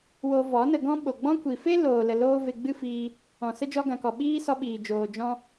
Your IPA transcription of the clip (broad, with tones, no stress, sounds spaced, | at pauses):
w o˧ v ɔ˨˦ n ə˧ ɡ ɔ̃˦ ɓ o˨ ɡ͡b ɔ̃˦ kʷ i˨ f e˦ l oː˨ l ə˨ l oː˦ v e˧ ɡ͡b ɨ˦ f iː˧ | ɔ̃˨ s ə˦ d͡ʒ ɔ˧ ɡ ã˨ k ɔ˨ ɓ iː˦ s ɔ˧ ɓ iː˨ d͡ʒ oː˨ d͡ʒ ɔ̃˧